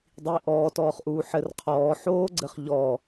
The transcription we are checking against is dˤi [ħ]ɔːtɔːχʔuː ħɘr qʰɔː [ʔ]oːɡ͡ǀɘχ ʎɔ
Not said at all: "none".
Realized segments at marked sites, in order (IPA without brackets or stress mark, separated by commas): ʔ, ħ